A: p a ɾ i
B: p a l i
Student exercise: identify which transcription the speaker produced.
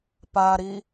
A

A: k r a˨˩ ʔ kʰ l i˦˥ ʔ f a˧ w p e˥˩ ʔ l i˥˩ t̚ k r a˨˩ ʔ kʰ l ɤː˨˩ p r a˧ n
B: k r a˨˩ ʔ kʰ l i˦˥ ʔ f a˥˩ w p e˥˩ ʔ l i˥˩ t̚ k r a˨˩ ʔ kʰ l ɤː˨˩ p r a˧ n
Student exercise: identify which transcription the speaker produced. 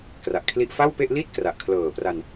B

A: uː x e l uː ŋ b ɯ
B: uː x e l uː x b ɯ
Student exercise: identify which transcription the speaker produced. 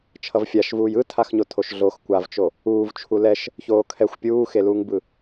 A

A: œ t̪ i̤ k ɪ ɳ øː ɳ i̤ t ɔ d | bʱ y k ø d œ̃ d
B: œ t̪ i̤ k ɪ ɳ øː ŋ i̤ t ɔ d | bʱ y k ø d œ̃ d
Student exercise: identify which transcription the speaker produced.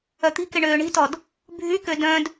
A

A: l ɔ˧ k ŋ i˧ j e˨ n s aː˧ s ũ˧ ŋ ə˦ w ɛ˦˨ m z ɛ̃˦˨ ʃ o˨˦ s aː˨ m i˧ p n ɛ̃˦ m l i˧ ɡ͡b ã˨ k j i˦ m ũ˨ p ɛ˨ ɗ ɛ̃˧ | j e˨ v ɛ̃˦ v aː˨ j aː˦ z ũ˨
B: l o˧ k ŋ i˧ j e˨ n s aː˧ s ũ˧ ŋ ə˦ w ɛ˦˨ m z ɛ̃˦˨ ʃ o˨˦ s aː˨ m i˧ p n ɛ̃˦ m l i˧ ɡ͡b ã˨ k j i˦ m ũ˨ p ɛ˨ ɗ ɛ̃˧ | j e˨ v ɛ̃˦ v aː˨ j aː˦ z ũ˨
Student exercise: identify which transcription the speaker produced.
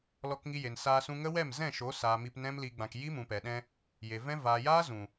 A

